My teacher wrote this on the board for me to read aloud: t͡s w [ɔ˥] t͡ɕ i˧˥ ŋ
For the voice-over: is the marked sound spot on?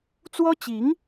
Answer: yes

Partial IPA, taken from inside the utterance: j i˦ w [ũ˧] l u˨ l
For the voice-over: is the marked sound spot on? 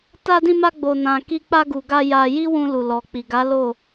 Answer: yes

